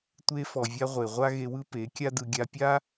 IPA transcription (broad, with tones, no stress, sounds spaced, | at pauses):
tʷ e˧ f ɔ˨ vʲ a˧ ʁʷ e˨ ʁʷ a˦ ɣ e˧ w ɯ˦ p e˨˦ kʲ a˦ d ɯ˧ ɡʲ a˧ pʲ a˦